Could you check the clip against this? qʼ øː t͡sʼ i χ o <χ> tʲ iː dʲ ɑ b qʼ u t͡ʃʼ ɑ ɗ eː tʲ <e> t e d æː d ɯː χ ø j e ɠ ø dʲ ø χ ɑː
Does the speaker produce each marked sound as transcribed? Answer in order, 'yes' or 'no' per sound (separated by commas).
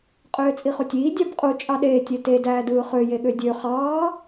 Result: no, no